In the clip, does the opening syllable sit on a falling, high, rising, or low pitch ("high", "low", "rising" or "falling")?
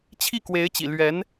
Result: falling